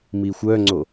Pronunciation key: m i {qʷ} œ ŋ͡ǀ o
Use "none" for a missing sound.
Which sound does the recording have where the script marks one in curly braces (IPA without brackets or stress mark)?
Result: xʷ